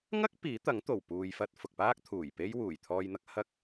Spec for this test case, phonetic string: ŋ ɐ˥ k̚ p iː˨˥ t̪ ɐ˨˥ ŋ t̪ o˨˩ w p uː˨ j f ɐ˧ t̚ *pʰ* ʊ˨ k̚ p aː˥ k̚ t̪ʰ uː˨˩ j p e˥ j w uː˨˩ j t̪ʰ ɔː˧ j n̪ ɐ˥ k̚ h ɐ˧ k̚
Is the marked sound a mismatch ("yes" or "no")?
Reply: yes